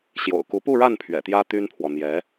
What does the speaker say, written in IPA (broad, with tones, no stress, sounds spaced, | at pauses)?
ɕ j o̰˨˩ ʊ̯ k u˧˥ p u˥˧ ɻ a˥˩ n pʰ ɥ ɛ̰˨˩ t̪ j ä˥ t̪ y˥ n pʰ w ɔ˨ n̪ j ɛ˧˥